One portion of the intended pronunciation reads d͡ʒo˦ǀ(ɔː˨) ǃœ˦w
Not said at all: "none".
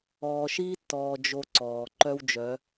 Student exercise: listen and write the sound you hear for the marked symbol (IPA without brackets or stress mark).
ɔː˨